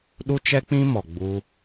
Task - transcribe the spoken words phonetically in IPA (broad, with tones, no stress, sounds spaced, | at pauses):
ɗ u˦ t͡ʃ ɛ˦ k͡p ĩ˦ m ɔ˨ ɡ͡b u˦